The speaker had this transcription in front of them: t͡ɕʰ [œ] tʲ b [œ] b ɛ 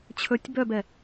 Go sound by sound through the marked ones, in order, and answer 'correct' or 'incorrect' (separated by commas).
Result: incorrect, correct